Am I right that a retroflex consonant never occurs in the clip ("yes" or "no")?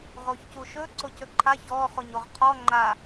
yes